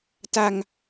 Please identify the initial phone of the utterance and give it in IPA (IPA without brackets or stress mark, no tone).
t